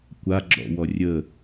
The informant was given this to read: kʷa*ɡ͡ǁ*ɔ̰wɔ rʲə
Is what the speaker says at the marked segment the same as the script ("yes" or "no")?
yes